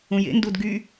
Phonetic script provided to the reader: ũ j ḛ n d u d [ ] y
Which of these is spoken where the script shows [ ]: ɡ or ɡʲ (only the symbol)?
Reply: ɡ